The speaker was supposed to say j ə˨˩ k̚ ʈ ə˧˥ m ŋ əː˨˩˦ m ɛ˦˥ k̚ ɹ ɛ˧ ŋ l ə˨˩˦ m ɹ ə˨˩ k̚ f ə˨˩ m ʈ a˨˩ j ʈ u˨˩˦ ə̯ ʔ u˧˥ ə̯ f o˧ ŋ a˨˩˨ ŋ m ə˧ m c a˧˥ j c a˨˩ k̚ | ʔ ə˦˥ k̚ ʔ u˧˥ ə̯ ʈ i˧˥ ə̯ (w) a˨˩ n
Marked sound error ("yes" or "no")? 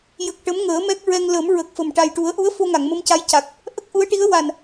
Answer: no